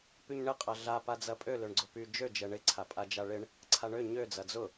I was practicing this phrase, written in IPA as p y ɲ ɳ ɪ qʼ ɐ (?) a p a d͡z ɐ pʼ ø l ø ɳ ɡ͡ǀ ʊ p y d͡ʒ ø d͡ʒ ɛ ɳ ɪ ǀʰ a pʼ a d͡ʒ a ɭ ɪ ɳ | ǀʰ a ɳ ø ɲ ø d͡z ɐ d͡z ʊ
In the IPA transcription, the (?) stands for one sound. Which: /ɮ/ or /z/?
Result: ɮ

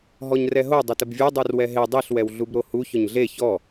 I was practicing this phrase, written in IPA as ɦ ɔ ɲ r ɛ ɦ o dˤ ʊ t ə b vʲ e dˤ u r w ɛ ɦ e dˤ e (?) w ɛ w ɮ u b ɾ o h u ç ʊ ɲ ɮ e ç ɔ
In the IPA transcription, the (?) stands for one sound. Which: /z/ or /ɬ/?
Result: ɬ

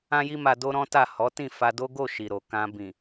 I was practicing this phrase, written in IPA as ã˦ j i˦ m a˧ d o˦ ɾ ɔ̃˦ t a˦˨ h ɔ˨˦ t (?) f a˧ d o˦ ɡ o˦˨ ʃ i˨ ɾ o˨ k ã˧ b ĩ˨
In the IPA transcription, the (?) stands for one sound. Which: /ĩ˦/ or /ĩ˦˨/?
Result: ĩ˦˨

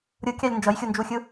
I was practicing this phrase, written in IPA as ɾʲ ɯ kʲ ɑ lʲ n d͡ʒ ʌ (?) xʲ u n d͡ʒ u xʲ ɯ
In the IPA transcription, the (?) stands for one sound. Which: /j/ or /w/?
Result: j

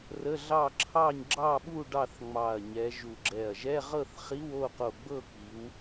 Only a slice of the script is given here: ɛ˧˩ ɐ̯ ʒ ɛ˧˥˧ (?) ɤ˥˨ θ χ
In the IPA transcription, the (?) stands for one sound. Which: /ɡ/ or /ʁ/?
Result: ʁ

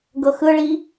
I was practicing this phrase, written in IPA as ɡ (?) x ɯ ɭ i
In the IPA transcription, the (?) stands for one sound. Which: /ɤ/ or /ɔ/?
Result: ɤ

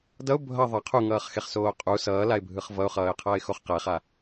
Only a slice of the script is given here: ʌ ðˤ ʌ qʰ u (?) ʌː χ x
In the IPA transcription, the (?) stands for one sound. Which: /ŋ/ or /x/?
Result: ŋ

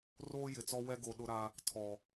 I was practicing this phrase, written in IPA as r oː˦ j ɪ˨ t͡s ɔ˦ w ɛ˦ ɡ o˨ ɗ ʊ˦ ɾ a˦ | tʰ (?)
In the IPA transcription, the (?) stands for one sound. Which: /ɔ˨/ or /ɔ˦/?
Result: ɔ˨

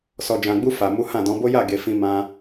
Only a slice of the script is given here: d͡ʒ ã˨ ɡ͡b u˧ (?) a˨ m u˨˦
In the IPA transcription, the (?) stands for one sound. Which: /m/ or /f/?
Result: f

